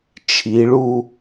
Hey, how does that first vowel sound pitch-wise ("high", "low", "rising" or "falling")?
rising